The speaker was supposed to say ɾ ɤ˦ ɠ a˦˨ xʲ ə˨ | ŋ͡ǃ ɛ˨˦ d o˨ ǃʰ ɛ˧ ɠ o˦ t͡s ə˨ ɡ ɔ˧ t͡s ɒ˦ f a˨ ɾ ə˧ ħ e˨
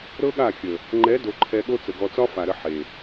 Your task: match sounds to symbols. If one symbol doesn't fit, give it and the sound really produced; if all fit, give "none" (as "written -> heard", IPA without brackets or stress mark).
none